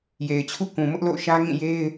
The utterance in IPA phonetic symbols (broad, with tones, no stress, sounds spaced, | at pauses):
j e˨ ɪ̯ t͡ɕʰ ṵ˦˨ k ũ˨ m ʊ˦ ʔ l o̰˦˨ ʊ̯ ʃ ä˦ ŋ ĩ˦˨ j e˦ ɪ̯